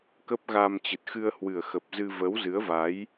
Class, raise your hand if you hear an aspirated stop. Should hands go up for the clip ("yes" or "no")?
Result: no